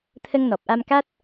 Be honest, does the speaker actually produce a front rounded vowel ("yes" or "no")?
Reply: no